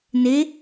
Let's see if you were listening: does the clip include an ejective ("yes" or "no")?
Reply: no